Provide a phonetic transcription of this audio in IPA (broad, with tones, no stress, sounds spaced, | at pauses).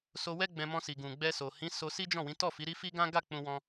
s o˧ w ɛ˦ ɡ͡b ɛ̃˧ m ɔ̃˧ s i˨ ɡ ũ˨ ɡ͡b ɛ˧ s o˨ h ĩ˨˦ s o˧ s i˦ d͡ʒ ɔ̃˦˨ w ĩ˨˦ t ɔ˦˨ f i˨˦ ɾ i˦ f i˦ ɡ ã˦ ɡ a˦˨ k͡p ũ˧ w ɔ̃˧